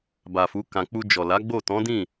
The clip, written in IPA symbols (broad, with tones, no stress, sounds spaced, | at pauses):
b a˨ f u˨˦ k ã˧ k͡p u˧ d͡ʒ ɔ˨ l a˨˦ ɡ͡b o˦˨ t ɔ̃˨˦ d ĩ˦˨